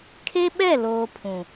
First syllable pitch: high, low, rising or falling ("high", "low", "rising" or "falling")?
high